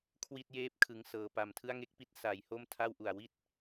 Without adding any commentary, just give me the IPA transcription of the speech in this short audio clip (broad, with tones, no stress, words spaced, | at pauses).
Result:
kʰwi˥˩t̚jeː˥˩p̚ kʰɯ˦˥ŋsɤː˧ pa˨˩mtʰɯ˥˩a̯ ŋe˦˥k̚pi˦˥t̚ sa˩˦jho˥˩m tʰa˥˩wʔu˨˩a̯ wi˥˩t̚